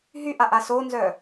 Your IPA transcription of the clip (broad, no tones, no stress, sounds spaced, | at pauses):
ɦ y ʔ a ʔ a s o n z œ